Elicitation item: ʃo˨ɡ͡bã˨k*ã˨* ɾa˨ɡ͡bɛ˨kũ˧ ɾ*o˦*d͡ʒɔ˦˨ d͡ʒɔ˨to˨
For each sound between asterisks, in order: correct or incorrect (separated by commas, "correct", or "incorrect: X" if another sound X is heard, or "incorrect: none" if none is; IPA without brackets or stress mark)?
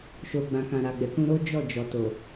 correct, correct